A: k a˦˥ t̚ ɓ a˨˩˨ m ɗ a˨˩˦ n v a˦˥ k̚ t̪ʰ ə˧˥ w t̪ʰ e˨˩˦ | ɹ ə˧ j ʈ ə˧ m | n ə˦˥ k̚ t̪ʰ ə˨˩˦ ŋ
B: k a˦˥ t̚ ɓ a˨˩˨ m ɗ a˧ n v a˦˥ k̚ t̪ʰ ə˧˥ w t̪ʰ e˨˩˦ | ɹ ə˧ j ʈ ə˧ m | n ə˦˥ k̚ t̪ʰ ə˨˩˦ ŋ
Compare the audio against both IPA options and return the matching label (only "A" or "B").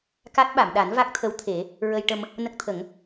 A